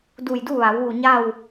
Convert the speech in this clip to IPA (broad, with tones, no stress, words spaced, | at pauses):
du˧˩jdu˥˨ʋa˩˧wʋu˧˩ ɲa˥˨w